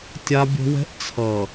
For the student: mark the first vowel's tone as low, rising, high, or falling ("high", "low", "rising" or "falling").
high